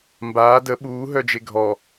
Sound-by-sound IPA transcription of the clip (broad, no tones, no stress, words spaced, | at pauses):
mbaː də ɓuː ɦœd͡ʒeɡʱɔ